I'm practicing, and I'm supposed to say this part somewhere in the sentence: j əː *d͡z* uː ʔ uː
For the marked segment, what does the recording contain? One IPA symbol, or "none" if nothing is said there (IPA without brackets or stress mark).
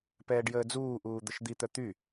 d͡z